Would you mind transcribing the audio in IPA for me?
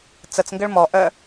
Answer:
t͡s ə t͡s ŋ ɡ ə ɭ m ɔ ʔ œ

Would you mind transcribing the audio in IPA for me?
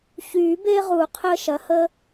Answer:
ç yː˨˩˦ b e˦ ʁ u˨˩˦ qʰ əː˦ ʃ ɐ˩˥ h ə˦

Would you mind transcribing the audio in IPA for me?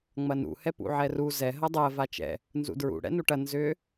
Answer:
ŋ͡m ɐ n ṵ h ɛ p ṵ ʕ ɛ r u z ɛ ɦ ɐ dˤ ɜ v a t͡ʃ ɛ̰ | n z ṵ d ɹ ṵ ɽ ɛ̰ n u ʈ ɐ n z ʏ

